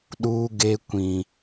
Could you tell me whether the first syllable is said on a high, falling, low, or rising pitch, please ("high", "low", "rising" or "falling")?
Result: high